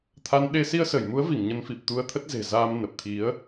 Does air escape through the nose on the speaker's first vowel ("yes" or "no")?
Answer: no